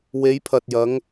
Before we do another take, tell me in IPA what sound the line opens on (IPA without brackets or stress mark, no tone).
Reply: w